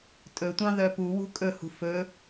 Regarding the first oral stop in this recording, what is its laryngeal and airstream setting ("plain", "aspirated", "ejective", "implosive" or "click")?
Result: ejective